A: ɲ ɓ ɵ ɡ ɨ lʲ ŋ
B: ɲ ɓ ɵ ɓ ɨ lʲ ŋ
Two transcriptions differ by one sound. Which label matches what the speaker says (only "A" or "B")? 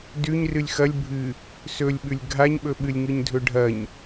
B